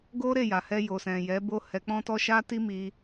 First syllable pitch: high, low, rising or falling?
high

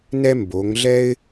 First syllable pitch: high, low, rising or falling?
high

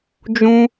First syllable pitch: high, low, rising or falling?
high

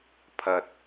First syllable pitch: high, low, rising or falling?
low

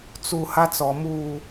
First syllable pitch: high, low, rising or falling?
low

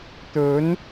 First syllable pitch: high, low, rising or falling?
rising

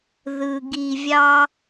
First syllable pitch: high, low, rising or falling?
low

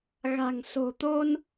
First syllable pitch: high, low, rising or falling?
low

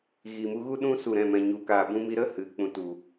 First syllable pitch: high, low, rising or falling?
low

